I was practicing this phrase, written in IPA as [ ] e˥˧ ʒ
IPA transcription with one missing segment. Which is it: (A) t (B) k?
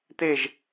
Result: A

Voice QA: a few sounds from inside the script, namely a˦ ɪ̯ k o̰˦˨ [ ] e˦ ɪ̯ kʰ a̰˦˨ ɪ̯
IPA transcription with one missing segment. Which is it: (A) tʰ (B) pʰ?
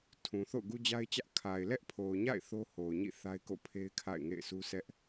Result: B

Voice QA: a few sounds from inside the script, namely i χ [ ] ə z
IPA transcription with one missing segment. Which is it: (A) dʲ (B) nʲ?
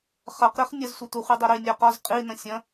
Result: B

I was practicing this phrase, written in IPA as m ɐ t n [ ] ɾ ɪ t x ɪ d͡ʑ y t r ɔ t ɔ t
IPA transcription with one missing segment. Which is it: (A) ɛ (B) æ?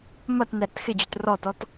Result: A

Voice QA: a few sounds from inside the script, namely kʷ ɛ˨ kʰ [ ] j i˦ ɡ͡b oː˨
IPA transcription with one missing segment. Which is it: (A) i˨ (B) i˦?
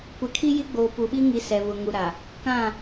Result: B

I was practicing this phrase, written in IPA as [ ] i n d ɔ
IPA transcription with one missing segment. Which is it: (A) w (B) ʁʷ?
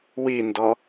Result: A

